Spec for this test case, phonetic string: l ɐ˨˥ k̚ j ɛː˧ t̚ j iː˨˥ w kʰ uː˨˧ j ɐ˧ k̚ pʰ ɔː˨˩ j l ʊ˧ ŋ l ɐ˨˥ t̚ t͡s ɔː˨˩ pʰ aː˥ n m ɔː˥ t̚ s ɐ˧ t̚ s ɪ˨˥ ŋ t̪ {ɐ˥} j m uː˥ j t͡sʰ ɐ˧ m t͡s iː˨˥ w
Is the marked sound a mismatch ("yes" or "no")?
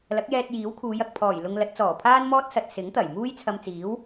yes